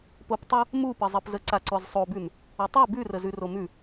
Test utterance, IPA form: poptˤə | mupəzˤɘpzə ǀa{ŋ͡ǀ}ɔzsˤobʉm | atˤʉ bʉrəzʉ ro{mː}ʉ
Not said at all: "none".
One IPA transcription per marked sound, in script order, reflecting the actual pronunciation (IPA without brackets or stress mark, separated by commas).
ǀ, m